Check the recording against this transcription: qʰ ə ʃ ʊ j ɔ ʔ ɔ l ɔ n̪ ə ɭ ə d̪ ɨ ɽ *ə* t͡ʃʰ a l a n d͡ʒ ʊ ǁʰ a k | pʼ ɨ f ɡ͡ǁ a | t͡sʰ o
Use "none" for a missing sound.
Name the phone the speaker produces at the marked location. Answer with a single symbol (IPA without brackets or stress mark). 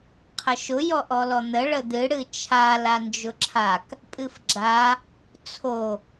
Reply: ɨ